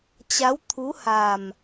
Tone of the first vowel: rising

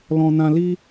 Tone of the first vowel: high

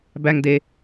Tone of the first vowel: low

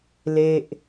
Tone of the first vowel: falling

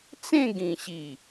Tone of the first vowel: falling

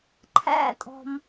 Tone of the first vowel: falling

